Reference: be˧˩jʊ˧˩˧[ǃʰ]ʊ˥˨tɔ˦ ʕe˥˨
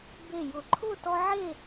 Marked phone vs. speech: correct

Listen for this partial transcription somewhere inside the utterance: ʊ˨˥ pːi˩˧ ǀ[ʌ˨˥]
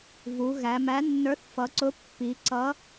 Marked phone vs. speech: correct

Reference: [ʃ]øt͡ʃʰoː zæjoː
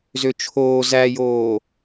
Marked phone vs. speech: incorrect: z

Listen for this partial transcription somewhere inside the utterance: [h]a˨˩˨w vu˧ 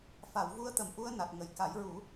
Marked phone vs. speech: incorrect: f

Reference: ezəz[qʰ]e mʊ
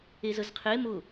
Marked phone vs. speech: correct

